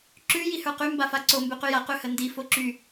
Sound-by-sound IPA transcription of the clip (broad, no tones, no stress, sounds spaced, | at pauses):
ǁ ʉ j i h ə˞ q y m b a f a ǀ o m b ʉ q y j a q ʉ h ə n d i f o ǁ y